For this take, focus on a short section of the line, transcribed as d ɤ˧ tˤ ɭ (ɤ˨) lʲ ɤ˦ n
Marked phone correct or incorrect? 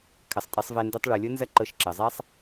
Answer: correct